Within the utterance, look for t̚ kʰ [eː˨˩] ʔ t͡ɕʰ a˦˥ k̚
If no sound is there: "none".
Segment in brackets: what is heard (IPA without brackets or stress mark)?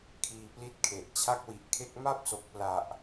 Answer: e˨˩